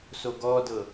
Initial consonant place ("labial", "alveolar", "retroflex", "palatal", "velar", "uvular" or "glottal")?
alveolar